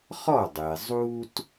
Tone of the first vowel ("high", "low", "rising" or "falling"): falling